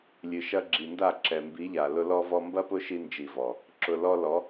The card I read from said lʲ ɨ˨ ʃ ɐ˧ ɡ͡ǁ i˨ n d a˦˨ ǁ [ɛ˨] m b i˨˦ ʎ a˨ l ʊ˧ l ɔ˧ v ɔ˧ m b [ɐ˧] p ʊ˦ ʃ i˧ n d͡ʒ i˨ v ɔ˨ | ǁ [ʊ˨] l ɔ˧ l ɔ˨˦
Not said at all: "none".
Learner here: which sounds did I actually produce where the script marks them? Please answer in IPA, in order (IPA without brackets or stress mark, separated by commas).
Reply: ɛ˨, ɐ˦, ʊ˨